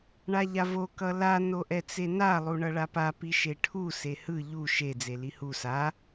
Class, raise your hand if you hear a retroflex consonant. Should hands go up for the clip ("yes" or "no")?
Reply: yes